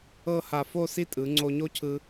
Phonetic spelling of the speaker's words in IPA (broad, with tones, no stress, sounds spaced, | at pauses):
ɤ˥˧ h a˧˩ f o˥˧ s i˥˧ tʼ ɯ˩˧ ŋ͡ǀ o˧ ɲ o˥ cʰ ɯ˧